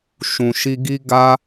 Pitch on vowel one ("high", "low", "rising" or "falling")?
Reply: low